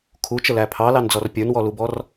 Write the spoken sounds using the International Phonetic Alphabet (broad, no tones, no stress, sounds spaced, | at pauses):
kʰ u t͡ʃ ə l æ pʰ ɑ l ɑ n d͡z ɔ r pʲ ə˞ n w ɔ l u b ɔ r